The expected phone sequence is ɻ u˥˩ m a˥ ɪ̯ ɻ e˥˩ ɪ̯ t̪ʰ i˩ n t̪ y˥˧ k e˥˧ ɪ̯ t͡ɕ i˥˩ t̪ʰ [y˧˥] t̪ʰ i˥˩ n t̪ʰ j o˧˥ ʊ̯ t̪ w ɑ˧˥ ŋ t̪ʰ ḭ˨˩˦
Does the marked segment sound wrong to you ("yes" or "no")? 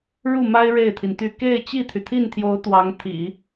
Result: yes